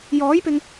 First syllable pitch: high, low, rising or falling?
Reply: rising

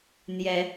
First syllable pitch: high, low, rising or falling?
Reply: rising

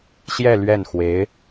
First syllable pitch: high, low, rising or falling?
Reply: falling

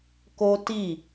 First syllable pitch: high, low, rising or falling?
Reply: high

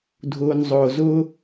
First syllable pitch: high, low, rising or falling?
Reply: low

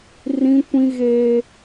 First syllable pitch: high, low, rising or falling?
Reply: high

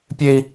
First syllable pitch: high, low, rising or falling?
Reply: high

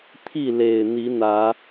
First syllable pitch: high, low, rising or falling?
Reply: falling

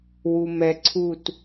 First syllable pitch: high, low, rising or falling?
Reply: low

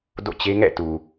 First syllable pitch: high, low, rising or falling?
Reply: falling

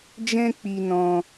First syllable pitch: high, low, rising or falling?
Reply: high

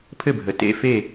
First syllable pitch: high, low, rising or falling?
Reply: falling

